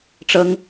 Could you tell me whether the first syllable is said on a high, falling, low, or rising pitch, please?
high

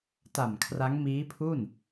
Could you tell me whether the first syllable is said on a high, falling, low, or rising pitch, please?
low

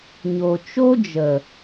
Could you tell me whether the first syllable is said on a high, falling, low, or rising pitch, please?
low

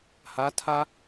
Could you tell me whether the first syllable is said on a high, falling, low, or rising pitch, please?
rising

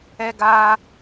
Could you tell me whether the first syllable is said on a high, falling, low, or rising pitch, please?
high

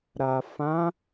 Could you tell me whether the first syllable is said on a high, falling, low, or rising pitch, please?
low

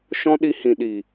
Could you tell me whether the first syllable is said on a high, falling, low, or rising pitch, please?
high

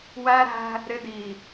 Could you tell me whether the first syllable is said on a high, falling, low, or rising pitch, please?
high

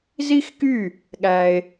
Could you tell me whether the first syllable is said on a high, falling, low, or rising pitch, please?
high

